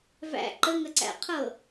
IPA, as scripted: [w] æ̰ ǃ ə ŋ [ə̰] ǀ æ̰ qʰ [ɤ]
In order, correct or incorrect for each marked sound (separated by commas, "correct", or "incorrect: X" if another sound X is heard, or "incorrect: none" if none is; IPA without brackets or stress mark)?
incorrect: v, incorrect: ə, correct